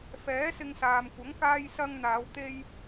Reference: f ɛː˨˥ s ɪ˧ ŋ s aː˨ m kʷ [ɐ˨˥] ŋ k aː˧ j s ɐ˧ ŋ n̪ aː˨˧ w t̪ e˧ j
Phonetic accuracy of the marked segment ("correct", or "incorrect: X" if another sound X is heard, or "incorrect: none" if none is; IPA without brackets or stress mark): correct